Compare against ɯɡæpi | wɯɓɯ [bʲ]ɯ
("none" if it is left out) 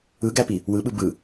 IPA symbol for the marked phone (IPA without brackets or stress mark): b